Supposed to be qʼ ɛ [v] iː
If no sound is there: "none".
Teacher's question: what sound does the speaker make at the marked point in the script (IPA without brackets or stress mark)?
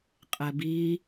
b